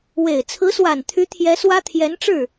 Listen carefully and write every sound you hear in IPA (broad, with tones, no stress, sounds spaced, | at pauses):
w e˨˩ ɪ̯ t͡sʰ ɹ̩˧˥ s w a˨˩ n t̪ʰ y˧˥ t̪ʰ j ɛ˧˥ s w ä˥ t̪ʰ j ɛ˧˥ n ʈ͡ʂ ɻ̩˥˩